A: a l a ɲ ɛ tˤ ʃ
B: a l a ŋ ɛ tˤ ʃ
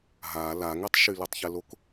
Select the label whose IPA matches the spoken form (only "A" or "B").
B